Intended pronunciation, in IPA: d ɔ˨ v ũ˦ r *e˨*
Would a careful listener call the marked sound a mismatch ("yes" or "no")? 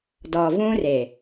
no